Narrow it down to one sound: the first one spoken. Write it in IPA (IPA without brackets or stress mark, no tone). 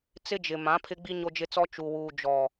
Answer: t͡s